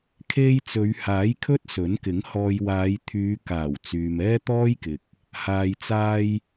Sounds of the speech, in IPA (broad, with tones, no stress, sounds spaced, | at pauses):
kʰ e˧ j t͡s ɵ˨˧ ɥ h aː˨˥ j kʰ ɵ˥ t̚ s ɵ˨˥ n k ɪ˨˥ ŋ h ɔː˧ j w aː˨˧ j t̪ʰ yː˨˧ k aː˨˩ w t͡s yː˨ m ɛː˥ t̪ ɔː˥ j k ɪ˨ k̚ | h aː˨ j t͡s aː˧ j